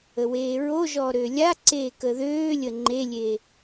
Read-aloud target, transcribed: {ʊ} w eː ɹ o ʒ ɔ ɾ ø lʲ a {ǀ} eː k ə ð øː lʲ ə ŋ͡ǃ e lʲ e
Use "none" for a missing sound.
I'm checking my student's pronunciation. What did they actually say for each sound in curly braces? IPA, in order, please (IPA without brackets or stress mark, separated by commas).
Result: ə, ǀ